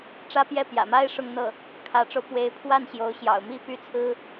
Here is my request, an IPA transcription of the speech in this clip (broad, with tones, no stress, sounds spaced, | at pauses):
ʈ͡ʂ ä˥˧ p j ɛ˥˩ p j ä̰˨˩ m a˥ ɪ̯ ʂ ʊ˥˧ ŋ n̪ ɤ˥˩ | kʰ ä˧˥ ʈ͡ʂ o˧ ʊ̯ p w e˧˥ ɪ̯ pʰ w a˥˩ n ɕ j o˧˥ ʊ̯ ɕ j ɑ̰˨˩ ʊ̯ m i˥ p y˥ t͡sʰ ɹ̩˥